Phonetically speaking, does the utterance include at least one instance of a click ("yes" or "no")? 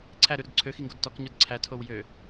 yes